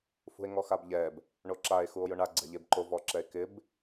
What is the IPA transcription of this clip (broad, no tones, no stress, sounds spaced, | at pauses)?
f ṳ e̯ ŋ ɔ x a b ʎ ɛ b | ɳ o ǁ a e̯ x u o̯ j ʊ ɳ a ɡ͡ǀ ɛ̤ ʎ e b ǃ o v ɔ ǁ ɛ e̯ k ɪ b